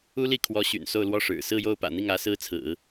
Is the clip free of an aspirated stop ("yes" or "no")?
no